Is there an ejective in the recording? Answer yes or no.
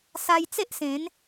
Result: no